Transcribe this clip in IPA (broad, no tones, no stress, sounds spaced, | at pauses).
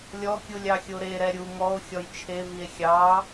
lʲ ɔ kʲ u lʲ ɑ xʲ o ɾ e ɾ ɛ ɾʲ u ŋ ɔ o̯ xʲ ɔ j t͡ʃʰ e v i e̯ xʲ ɑ